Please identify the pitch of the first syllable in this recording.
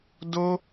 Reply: high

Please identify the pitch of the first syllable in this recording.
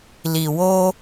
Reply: low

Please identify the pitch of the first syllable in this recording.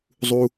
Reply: high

